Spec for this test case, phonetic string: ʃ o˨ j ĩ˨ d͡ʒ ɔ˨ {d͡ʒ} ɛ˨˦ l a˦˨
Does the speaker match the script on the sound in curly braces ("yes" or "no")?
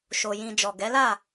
no